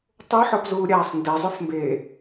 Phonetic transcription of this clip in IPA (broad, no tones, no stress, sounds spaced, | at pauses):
tˤ o ħ ɔ p z uː ɾʲ aː sˤ n d e zˤ ʊ f m b eː